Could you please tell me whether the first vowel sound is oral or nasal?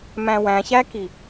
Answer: nasal